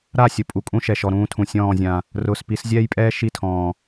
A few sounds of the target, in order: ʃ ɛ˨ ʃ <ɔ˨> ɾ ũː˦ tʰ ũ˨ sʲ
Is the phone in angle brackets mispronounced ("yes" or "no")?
no